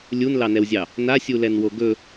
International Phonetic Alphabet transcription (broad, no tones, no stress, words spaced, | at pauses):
lʲunlɑnɛwzʲɑ | nasʲulɛnwo ɡɵ